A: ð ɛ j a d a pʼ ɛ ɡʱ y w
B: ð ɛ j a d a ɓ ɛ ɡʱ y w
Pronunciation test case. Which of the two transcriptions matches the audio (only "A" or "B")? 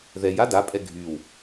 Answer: A